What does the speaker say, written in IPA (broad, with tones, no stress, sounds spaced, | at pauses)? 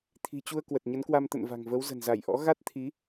t̪ʰ i̤˨˩ t͡ɕ u˧ ə̯ k w ə˨˩ t̚ ɲ ə˨˦ n k w a˧ m t̪ ə̰˧˨ n v a̤˨˩ ŋ v ə˨˦ w z ə̤˨˩ n z a˧˩ j ʔ ɔ̰˧˥ ɣ a˦˥ t̚ t̪ʰ i˨˦